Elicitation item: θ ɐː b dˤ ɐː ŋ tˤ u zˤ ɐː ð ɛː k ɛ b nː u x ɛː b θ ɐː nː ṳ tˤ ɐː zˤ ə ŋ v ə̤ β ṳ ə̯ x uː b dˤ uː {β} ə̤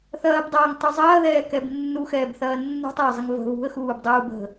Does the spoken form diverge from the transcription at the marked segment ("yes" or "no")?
yes